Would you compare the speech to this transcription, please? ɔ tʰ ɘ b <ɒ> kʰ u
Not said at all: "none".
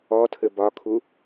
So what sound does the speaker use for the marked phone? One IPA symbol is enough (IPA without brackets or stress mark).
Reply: ɒ